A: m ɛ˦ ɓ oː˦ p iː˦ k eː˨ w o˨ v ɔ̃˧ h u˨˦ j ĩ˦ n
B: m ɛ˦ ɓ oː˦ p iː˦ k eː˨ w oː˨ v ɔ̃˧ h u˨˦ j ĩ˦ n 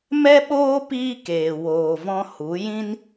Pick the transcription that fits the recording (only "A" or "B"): B